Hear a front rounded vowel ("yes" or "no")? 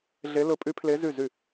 yes